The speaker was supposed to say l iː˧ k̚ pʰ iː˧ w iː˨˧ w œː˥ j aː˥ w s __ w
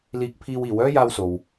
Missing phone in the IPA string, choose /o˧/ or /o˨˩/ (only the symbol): o˧